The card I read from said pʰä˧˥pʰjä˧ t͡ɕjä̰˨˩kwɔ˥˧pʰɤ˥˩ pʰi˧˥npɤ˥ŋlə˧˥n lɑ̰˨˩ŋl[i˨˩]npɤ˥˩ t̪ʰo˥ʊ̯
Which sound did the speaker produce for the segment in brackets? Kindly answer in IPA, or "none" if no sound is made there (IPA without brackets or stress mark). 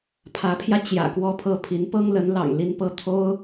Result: i˥˧